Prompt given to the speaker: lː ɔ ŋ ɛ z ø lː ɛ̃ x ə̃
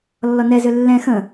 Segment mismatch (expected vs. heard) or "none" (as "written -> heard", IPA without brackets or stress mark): ŋ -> n